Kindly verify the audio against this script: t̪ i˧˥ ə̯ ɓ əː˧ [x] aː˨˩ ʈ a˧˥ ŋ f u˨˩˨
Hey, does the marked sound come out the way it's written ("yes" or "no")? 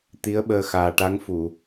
yes